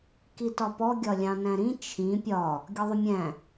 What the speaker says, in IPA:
k i t ɒ p ɔ ɡʲ ɒ lʲ ɑ̃ n æ̃ ɾ ĩ t͡ʃʰ ĩ pʲ ɒ | ɡʲ ɒ ðˤ ʊ mʲ æ̃

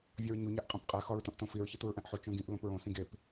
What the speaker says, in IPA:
vʲ ɒ ɹ ɲ u ɲ æ ʔ qʼ ĩ p qʼ æ x ɒ ɹ t õ ʔ t õ f i ɹ ç e t̪ u ɹ ʔ æ̃ ʔ ħ o t͡ʃ õ ɡ ĩ ʔ l õ p ɹ õ s ĩ ɡ e p

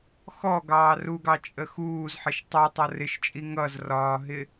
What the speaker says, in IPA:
x ɔ ɡ ɑː r u ɡ ɑ t͡ʃʼ ə x uː z ħ ɪ ʃ tˤ ɛ tˤ ʌ r ɪ ʃ t͡ʃʼ i ŋ ʌ z r ɒː ɦ ɪ

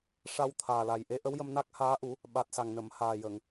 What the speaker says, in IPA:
ʂ a˧ w t̪ʰ aː˨˩ l a˨˩ j ʔ e˧˥ ʔ ə˧˥ w j ə˧ m n a˦˥ k̚ h aː˧˥ ʔ u˨˩˦ | ɓ a˨˩ t̚ s a˨˩ ŋ n ə˨˩˨ m h aː˨˩ j ə˨˩˨ ŋ

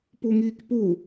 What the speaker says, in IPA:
p u ŋ iː k p u

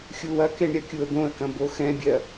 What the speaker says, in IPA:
xʲ u w ɐ k e ɳ ɾʲ ɐ kʲ u ə̯ d̪ õ ə̯ k ɐ̃ b o x ɛ̃ bʲ ɜ

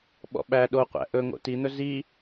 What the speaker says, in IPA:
ɓ ɔ̰ ɓ æ ɗ o qʷ æ̰ ʔ ɵ ŋ o̰ t i n̪ ɵ z i

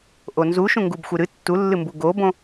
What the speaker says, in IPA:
ʔ o n z u ʃ ũ ŋ ɡ u b xʷ ɨ ɾ ɨ tː u lː ɨ m b u ɡ o b õ

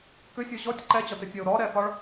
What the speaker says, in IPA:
k ʏ sʲ ɔ ʑ ɔ tʲ ǃ ɛ d͡ʑ ɒ t e tʲ ɒ ʊ̯ ɾ ɔ ɾ ɛ f ɒ ɭ

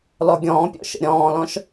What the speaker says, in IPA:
l ɔ ɡʲ ɔ̃ː pʲ ɔ̰ ʃ ə̰ ɾʲ ɔ̃ː l ɔ̃ ʃ

